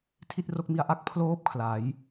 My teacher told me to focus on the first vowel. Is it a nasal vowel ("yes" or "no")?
no